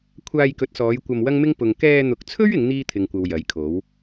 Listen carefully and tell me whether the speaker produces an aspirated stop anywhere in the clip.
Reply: yes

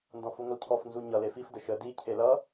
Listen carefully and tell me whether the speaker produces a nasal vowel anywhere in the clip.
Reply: yes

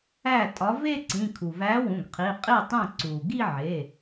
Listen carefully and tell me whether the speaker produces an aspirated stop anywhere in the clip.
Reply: yes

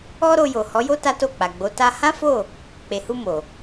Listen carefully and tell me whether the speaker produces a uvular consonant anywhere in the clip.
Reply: no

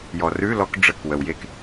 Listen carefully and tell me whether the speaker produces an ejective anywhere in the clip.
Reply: no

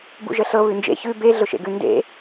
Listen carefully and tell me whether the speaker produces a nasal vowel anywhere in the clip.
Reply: no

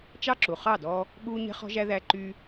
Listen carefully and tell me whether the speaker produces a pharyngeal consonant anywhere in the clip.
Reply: no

